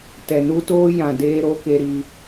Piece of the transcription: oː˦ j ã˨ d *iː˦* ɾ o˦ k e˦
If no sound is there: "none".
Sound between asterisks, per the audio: eː˦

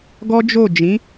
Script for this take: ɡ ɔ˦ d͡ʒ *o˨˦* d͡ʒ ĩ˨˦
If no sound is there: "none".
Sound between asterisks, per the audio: o˦˨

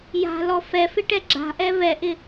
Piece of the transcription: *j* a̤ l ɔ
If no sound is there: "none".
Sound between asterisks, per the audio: j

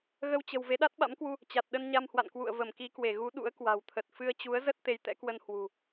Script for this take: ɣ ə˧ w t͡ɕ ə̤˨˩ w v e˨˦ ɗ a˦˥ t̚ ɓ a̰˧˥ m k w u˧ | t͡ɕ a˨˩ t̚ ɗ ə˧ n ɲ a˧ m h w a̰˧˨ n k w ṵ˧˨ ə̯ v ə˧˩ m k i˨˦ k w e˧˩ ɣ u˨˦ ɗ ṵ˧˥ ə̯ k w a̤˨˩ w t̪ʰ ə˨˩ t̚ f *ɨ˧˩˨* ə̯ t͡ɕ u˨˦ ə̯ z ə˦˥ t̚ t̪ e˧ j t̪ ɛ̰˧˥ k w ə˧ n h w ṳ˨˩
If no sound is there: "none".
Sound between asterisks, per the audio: ɨ˧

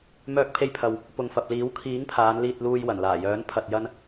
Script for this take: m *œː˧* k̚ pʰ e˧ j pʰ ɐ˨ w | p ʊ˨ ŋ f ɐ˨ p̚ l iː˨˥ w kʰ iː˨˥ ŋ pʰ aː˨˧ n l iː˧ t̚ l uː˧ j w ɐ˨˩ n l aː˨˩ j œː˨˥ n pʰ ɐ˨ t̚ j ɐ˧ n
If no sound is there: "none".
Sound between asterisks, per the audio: œː˧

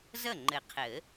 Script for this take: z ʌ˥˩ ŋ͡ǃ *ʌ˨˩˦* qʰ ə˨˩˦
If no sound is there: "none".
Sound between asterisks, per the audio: ə˨˩˦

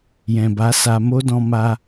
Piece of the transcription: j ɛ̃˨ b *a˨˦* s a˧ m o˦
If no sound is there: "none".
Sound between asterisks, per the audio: a˨˦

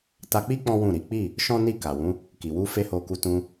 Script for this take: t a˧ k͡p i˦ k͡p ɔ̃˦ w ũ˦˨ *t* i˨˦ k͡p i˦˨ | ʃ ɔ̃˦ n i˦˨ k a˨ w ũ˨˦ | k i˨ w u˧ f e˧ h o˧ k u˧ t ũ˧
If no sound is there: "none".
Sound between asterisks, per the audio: ɾ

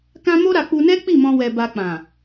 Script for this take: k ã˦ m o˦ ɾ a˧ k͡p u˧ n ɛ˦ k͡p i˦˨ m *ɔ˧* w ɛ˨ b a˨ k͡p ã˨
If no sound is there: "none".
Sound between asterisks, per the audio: ɔ̃˧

